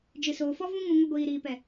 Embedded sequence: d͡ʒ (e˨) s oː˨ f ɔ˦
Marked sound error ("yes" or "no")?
yes